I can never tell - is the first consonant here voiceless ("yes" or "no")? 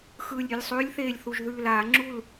yes